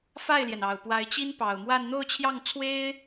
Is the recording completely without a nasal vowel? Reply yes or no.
yes